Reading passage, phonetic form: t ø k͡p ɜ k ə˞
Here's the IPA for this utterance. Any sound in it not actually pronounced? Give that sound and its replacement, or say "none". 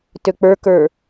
ɜ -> ə˞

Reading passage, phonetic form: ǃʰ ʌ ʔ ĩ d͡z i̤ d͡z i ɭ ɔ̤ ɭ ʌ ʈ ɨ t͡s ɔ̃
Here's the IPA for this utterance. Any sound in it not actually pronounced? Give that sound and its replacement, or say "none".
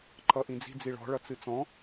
ʈ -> t͡s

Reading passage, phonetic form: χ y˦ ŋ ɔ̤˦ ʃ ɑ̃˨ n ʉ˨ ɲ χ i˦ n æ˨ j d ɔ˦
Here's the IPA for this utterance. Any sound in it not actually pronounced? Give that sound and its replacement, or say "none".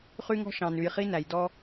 ɲ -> j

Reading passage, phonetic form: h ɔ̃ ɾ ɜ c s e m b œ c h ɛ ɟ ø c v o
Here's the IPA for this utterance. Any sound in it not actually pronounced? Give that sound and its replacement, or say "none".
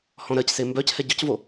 none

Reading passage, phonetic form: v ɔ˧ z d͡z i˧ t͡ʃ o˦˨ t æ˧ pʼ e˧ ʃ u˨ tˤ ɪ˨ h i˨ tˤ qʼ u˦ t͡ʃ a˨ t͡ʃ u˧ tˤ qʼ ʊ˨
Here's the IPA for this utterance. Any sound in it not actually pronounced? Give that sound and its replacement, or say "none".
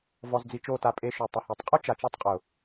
æ˧ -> a˧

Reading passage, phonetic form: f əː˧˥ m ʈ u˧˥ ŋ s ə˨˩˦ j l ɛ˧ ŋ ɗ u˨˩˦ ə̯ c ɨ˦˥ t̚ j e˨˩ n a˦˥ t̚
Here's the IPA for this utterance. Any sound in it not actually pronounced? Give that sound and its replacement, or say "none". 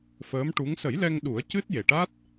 n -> ʈ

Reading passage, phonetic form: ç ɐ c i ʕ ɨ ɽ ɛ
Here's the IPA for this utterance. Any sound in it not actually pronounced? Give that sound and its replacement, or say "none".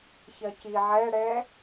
ɨ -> ɛ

